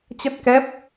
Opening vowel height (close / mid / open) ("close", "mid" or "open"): mid